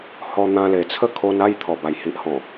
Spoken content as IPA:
h ɔ˧ n̪ ã˧ l e˨˩ t͡sʰ ə˥˧ kʰ o˧ n a˥˧ j t̪ʰ ɔ˨˩ b a˨˩ j h i˨ ʔ h ɔ̃˨˩

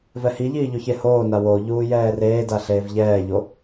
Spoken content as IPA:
v ɛ h i ʎ iː ʎ o ç e h oː n a w o ʎ uː j ɛː r eː d a ɬ eː v ʎ ɛː ʎ o

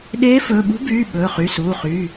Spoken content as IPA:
ɗ eː˧˥ f ɵː˩˧˩ ɓ ṳ˧˥ b yː˩˧˩ ɓ ɵː˩˧˩ χ y˩˧˩ s uː˩˧˩ χ yː˩˧˩

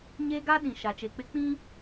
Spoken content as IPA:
ɲ e˦ ɡ a˦ ɗ ĩ˨ ʃ a˨ t͡ʃ e˨ k͡p ɪ˦ k͡p ĩ˦

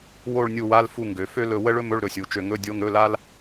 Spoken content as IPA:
w o˦˨ ɭ nʲ u˦˨ w a˧˥˧ l f u˦˨ ŋ ɡ ø˩˧ f ø˥ l ɵ˦˨ w ə˥ ɭ ɵ˥ m ɵ˧˥˧ ɭ ɾ ɵ˩˧˩ sʲ u˩˧ t͡ʃ ø˦˨ ŋ ɵ˧˥˧ dʲ o˧˥˧ ŋ ɾ ɵ˧˥˧ l a˥ l

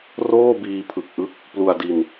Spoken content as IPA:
r oː˥˩ b iː˧ pʰ ɯ˨˩ k̚ ʔ ɯ˥˩ k̚ | p l u˧ a̯ d i˧ n

